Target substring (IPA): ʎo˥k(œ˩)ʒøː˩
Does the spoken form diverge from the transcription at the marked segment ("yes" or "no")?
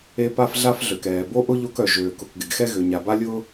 no